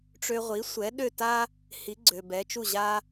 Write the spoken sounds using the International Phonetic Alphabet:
ʈ͡ʂ ø˧ ʁʷ i˩˥ sʷ ɛ˩˥ ɗ ø˥˩ t a˥ | h i˩˥ ɡ͡ǀ ø˩ b ɛ˩˥ t͡ʃ u˥˩ ʑ a˧

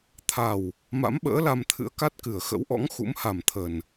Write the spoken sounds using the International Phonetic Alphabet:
t̪ʰ a˨˩ w | m a̰˧˥ m ɓ ə̰ː˧˥ l a˧ m t̪ʰ ɨ̰˧˥ ə̯ k a˦˥ t̚ k ɨ˨˩ ə̯ x ə̰˧˥ w ʔ ɔ̰˧˥ ŋ x ṵ˧˥ m h a˨˩ m t̪ʰ ə˨˩ n

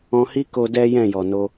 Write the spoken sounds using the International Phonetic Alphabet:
ɔ̃˧ h i˦ k o˦ d ɛ˦ j ɛ̃˦˨ j ɔ˨ n o˧

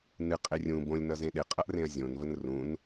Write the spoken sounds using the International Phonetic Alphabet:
n ɨ qʼ e rʲ ũ b õ lʲ n ʌ z ẽ ɗ e qʼ ʌ ʔ r ẽ ɐ̯ zʲ õ n v ə n r ũ n

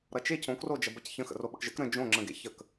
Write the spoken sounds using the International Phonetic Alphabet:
ɾ ʌ t͡ʃ e cʰ õ k r o d͡ʒ ɐ b ɐ c ç ə̃ x ə̰ r o ɓ ə̰ k ʒ ə̰ k ɾ ə̃ d͡ʒ õ ŋ͡ǁ ə̃ ɡ ḛ ç ə k

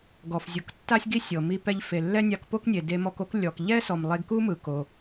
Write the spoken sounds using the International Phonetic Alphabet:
ɡ ɔ˩ f zʲ u˩ k tː a˥ sʲ ɡ i˥ sʲ ɤ˩ m i˧ p ɛ˧ ʎ f e˩ lː ɛ˥ nʲ a˧ k p o˥ k nʲ e˩ d e˧ m ɔ˧ k o˥ k lʲ ɔ˩ k ʎ ɛ˥ s ɔ˩ m lˠ e˧ ɡ k u˥ m ɯ˩ k o˩

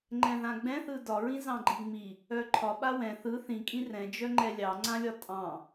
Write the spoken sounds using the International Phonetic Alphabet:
ŋ͡ǃ ɛ̃ ð ã ɡ͡b ɛ̃ θ ɯ d ɒ ɹ ĩ z ɑ̃ ɡ͡ǃ i ŋ͡m i | œ ǃʰ ɒ ɓ a w ɛ̃ θ ɯ θ ĩ kʼ ĩ r ɛ̃ d͡ʒ œ ŋ͡ǃ ɛ lʲ ɑ ŋ͡ǀ ã lʲ ɒ tʼ ɑ̃

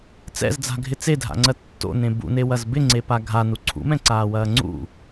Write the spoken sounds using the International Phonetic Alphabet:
t͡s ɛ̰ z d͡z a̤ ɡʱ ɪ t͡s e dʱ a̰ ŋ͡ǀ ɜ tː o̰ n ẽ b ṵ n e w ɐ z b ɪ ŋ͡ǀ e p a ɡʱ a n u ǀʰ ṵ m ɛ̃ ǀ aː w ɐː ŋ͡ǀ ṵ

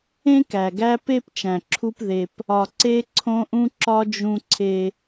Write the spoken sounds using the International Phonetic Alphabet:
ẽ˦ k æ˨ ɡ æ˦ p e˦ p t͡ʃ æ̃˨ ǁʰ u˦ p ð e˦ p | ɒ˨ ǀ e˦ ǀʰ õ˦ ʔ ũ˦ ǁ ɒ˦ d͡ʒ ũ˦ ǀʰ e˦

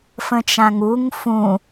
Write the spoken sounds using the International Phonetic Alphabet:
f ə̃ t͡ʃ ã ŋ u ŋ f ũ

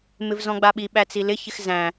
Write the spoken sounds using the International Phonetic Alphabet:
m ɪ v z ɔ̃ ɡ͡b a ɓ i ɓ æ t͡s i l ɪ ç ɪ x z æ̃

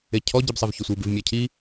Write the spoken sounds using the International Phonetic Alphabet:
e cʰ ɔ ɟ i b sˤ e v ç ʊ sʷ i b ɪ v mʲ a cʰ i

